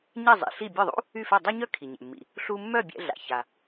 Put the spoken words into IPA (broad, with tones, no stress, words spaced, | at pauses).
ɲɛ˥˩zˤḭ˩ ɬi˥˩ bʲœ˥˩ðˤṵ˥ | y˥˩fɛ˥˩dˤœ˥ɲœ˥ kʰi˩ɲɛ̰˩mːḭ˩ | ɬu˧mːœ˥˩ bʲɛ̰˧ɮa̰˩ ça˩